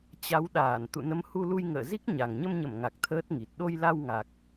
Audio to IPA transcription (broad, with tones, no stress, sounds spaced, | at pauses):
t͡ɕ a˨˦ w ɗ aː˧˩ n t̪ ṵ˧˨ n ə˨˦ m h u˧ l u˧ j ŋ ə̰ː˧˨ z i˦˥ k̚ ɲ a˨˩ ŋ ɲ ə˧ m ɲ ə˧˩ m ŋ a˨˩ k̚ t̪ʰ əː˦˥ t̚ ŋ i˨˩ t̚ ɗ o˧ j l a˧ w ŋ a˨˩ k̚